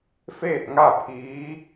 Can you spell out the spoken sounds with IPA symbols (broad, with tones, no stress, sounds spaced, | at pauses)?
f eː˥˨ t̚ ŋ a˥˨ pʰ iː˧˥